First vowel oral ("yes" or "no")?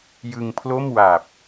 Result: yes